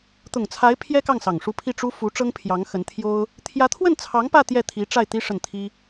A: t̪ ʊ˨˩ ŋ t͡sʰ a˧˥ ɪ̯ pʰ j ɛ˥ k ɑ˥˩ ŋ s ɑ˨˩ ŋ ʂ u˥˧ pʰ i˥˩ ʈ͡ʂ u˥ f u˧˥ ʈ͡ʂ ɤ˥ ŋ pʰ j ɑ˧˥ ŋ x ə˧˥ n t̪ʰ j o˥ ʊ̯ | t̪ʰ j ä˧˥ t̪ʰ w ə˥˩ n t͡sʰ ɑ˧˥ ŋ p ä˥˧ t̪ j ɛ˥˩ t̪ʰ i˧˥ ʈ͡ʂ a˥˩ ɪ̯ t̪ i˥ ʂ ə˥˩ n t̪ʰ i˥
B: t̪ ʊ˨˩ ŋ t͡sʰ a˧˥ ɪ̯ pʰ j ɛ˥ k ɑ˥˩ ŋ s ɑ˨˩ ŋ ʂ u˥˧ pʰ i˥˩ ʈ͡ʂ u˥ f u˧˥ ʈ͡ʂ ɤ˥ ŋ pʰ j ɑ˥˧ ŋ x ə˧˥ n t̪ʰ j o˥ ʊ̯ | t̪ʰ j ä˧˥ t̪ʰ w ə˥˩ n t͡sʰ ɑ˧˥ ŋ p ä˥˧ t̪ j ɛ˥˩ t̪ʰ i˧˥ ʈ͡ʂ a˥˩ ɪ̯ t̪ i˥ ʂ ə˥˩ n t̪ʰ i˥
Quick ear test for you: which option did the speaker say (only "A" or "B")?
A